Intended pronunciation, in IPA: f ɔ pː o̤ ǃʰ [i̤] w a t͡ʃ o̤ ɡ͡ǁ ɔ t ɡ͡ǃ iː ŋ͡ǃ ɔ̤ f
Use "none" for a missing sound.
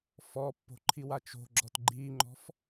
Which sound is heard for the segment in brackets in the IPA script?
i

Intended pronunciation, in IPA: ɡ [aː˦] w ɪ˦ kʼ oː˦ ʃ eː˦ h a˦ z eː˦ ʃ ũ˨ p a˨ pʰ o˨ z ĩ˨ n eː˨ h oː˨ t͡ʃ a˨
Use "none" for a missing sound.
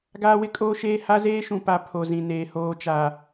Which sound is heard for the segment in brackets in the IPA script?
aː˦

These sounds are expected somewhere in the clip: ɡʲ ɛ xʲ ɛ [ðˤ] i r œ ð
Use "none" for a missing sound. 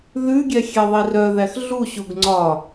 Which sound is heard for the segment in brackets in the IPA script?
ðˤ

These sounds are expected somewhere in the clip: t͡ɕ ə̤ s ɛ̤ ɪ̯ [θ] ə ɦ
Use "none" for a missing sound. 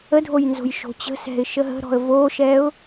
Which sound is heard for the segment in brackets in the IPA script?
ʃ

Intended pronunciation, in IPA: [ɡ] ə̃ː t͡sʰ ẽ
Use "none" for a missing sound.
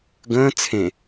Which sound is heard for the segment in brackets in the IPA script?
ɡ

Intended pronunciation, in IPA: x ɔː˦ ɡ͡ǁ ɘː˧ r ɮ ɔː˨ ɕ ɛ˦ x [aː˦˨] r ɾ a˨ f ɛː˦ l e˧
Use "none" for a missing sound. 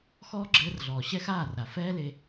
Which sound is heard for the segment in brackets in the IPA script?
aː˦˨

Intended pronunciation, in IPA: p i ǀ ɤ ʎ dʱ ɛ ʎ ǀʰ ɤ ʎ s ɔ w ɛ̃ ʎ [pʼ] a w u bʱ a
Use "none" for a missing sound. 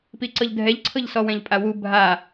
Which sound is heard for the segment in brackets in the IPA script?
pʼ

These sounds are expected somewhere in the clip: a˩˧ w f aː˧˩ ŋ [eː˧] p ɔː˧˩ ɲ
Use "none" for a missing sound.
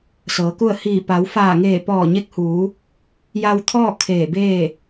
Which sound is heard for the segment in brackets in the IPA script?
eː˧˩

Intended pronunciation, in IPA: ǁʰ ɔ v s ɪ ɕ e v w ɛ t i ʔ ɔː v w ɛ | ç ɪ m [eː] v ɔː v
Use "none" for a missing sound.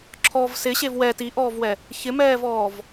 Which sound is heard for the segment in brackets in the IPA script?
ɛː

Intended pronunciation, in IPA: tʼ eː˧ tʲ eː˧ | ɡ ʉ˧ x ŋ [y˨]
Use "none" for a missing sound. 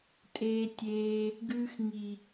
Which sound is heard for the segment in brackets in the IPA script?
i˨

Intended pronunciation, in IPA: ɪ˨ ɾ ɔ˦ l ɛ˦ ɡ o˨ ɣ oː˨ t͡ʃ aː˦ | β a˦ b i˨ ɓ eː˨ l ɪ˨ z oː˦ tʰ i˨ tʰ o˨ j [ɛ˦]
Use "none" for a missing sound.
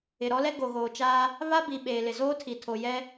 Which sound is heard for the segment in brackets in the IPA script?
ɛ˦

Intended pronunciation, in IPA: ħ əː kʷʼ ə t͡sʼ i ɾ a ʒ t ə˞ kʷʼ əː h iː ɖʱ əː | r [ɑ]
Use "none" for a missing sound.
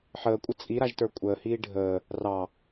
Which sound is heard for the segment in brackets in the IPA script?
ɑ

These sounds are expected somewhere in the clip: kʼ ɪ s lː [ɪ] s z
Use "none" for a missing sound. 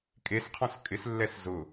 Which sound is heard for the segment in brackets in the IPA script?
ɛ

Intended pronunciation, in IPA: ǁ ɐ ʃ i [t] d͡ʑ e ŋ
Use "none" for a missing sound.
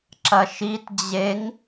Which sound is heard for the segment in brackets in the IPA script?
t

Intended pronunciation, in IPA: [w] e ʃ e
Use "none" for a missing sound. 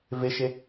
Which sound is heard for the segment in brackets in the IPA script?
v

